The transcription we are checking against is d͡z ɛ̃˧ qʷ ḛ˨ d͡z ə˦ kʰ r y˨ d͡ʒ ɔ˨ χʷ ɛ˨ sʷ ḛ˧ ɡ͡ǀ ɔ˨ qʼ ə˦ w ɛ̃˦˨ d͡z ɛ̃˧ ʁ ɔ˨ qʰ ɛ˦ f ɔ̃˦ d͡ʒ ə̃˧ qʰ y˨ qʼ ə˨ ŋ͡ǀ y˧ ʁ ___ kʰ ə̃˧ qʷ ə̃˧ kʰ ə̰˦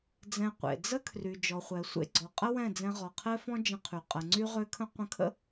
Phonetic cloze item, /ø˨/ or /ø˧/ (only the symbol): ø˧